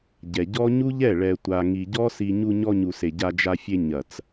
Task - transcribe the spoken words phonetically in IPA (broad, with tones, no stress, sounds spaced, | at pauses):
ɟ ɛ˨ ɟ ɔ˦ ɲ u˦ ʎ ɛ˦˨ ɭ ɛ˧ tʷ a˧ ŋ i˧ ɟ ɔ˦ s i˧ ɲ u˧ ɲ ɔ˧ ɲ u˨ s e˨ ɟ a˧ d͡ʒ a˧ fʲ e˧ ɲ ɐ˨ t͡s